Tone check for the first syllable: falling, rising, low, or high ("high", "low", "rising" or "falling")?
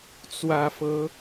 low